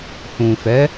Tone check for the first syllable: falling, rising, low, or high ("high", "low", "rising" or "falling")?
low